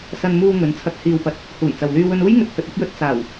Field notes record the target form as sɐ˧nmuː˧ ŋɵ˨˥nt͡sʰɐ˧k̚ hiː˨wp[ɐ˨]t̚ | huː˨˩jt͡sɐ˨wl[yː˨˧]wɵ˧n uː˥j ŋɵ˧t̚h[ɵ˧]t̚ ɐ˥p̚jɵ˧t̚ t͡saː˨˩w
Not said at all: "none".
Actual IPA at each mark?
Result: ɐ˨, yː˧, ɵ˧

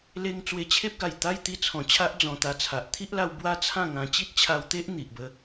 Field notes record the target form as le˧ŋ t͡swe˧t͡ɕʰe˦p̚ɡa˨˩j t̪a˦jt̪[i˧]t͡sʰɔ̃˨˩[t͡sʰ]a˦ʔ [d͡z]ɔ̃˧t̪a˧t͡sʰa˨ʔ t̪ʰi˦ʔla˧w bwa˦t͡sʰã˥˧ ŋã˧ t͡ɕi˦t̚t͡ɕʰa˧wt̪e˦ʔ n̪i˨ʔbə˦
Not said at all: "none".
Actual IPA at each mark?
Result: i˧, t͡ɕʰ, d͡z

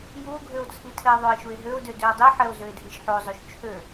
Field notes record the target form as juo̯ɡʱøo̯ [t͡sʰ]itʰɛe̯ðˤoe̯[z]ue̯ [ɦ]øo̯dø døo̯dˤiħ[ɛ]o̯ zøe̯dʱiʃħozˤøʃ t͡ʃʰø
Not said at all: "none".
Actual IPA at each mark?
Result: t͡sʰ, ʃ, ɦ, ɛ

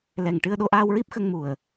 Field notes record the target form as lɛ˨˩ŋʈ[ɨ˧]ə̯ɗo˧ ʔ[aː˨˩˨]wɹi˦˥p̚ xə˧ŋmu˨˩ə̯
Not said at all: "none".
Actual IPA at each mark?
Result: ɨ˧, aː˧

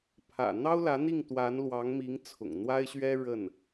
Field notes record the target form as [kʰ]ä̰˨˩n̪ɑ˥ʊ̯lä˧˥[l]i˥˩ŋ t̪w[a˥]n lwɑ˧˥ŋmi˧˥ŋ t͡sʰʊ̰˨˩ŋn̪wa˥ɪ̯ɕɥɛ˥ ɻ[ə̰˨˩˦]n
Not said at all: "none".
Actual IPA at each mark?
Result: pʰ, n̪, a˧˥, ə˥˩

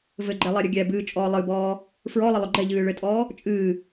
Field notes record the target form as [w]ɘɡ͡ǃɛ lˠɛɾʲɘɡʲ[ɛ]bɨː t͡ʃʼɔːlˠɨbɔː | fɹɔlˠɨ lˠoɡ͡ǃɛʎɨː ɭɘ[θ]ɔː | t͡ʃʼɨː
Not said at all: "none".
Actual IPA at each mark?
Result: v, ɛ, tʼ

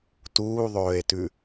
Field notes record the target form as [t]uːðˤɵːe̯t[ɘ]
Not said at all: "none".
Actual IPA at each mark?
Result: t, ʉ

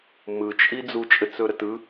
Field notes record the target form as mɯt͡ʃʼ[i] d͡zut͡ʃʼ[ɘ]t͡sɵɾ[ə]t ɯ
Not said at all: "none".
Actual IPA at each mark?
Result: i, ɘ, ə

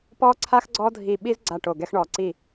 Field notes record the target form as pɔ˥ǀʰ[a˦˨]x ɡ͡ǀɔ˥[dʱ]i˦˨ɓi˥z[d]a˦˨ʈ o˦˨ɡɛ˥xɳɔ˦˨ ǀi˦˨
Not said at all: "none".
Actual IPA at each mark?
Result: a˥, dʱ, ɡ͡ǀ

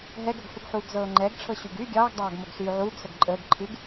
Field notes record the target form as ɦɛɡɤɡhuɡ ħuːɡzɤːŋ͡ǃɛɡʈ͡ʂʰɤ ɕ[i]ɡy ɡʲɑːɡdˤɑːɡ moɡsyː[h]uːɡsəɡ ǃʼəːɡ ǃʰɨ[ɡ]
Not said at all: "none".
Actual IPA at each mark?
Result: y, ʕ, ɡ

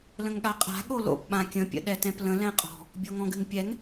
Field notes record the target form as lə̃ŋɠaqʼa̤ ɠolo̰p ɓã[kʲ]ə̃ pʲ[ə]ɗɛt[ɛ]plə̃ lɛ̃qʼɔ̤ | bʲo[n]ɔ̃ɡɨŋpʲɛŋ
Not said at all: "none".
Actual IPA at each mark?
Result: kʲ, ə̰, ɛ̃, ŋ

